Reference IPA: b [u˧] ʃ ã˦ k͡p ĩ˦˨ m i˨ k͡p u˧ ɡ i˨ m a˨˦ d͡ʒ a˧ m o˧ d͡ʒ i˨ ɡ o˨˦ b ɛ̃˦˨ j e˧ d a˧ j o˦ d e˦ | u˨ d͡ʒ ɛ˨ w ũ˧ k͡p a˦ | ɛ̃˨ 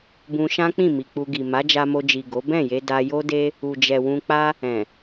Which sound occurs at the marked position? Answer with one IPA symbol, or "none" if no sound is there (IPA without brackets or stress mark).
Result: ũ˧